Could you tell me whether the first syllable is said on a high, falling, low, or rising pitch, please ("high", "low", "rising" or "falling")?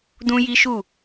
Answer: high